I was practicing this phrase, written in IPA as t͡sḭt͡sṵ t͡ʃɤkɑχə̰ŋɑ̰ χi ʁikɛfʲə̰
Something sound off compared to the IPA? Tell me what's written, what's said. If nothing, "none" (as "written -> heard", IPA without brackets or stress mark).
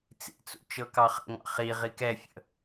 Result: none